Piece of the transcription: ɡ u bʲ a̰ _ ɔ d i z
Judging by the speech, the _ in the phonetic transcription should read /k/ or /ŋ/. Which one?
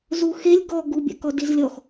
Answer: k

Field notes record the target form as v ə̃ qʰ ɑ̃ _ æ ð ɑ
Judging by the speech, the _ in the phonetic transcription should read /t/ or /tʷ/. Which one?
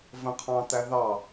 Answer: t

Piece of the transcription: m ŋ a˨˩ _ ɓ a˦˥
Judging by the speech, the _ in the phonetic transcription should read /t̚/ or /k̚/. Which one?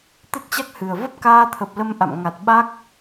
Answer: t̚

